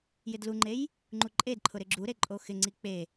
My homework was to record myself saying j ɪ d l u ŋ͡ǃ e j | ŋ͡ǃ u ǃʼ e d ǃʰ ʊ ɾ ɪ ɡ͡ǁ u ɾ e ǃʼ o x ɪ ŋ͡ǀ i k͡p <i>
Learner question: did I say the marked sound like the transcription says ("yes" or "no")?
no